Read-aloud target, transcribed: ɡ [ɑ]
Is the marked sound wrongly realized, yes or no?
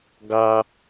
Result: no